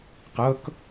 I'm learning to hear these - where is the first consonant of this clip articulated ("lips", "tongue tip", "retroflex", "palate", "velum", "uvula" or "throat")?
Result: uvula